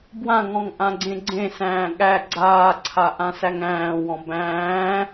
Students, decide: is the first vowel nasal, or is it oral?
nasal